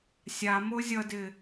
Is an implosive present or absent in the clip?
absent